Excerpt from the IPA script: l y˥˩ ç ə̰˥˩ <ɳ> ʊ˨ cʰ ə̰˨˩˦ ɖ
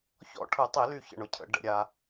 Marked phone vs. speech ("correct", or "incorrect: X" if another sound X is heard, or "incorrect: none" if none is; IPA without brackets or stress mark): correct